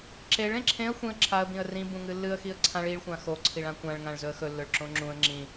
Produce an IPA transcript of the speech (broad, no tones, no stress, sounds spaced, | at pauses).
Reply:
ǁ e ɭ ẽ ǁʰ ẽ ə̯ xʷ ĩ ə̯ ǁʰ a ə̯ b ĩ ə̯ r ĩ b ũ ŋ ɨ lː ɨ ə̯ x i ə̯ ǀʰ ã ɭ i ɭ xʷ ã x o ǀʰ i ɭ ã kʷ ã ɭ ŋ ã ɭ z ɵ ə̯ x ɵ lː ɵ ɭ ǁ õ ŋ͡ǁ ũ ə̯ ŋ͡ǁ ĩ